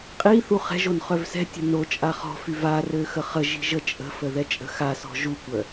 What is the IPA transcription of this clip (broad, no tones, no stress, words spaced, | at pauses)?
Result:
qʼiθu χɛ̤ʒon χœvsɛ̤tʲə̤ no t͡ʃʼaχɔ̤fyv arø xəχəʒi̤ ʒət͡ʃʼə̤fə ðɛt͡ʃʼə̤xasɔ̤ ʒukʷœ